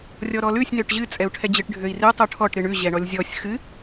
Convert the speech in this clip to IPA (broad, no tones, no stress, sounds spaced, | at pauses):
rʲ ɔ ɾ ɔ l ʉ sʲ n ø ʈ ʑ ɨ t͡sʼ ɛ u̯ ʈʰ ɛ d͡ʑ ɨ ʈ ɖʱ ø i̯ r ɨ tˤ u ʈʰ ɔ ʈ ɾ ɨ ɳ ʉ ʑ ɛ ɳ ɔ lʲ zʲ ɔ sʲ x ɨ